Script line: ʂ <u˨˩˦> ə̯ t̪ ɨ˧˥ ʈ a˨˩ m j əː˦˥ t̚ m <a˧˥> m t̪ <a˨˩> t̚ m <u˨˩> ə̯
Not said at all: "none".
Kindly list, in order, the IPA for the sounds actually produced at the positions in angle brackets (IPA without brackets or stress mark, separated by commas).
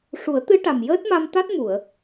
u˨˩˦, a˧, a˦˥, u˨˩˨